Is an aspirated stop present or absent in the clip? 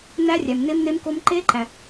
present